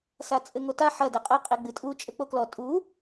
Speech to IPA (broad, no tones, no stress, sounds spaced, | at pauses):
s a t͡sʼ ɘ ŋ o t a ħ ɐ d ɛ qʼ ɐ qʼ e ɡ͡b ɨ tʼ u t͡ʃʼ ɘ k͡p o k l ɔ tʼ u